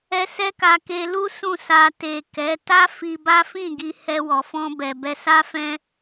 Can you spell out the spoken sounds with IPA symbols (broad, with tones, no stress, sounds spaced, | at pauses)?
ɛ˦ s ɛ˦ k a˧ k e˧ l u˦ s ũ˦˨ s a˧ t e˨ k ɛ˨˦ t a˦ f i˧ b a˦ f ĩ˦˨ ɡ i˧ h ɛ˧ w ɔ˨ f ɔ̃˧ b ɛ˨ b ɛ˧ s a˦ f ɛ̃˦